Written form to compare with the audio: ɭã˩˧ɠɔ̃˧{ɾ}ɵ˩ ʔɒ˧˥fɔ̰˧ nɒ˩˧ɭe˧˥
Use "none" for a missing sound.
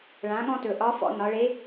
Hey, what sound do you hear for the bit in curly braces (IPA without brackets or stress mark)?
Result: t